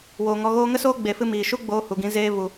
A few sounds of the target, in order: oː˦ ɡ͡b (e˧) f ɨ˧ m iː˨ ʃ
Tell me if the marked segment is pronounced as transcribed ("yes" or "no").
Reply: no